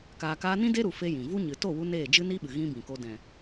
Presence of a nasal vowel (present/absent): present